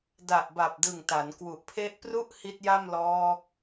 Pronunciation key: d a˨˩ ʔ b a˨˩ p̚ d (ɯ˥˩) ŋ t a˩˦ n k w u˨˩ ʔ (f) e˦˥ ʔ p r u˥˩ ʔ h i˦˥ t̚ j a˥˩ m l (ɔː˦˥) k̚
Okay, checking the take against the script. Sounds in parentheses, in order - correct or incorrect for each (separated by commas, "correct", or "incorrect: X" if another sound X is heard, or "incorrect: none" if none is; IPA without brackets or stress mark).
incorrect: ɯ˨˩, incorrect: pʰ, correct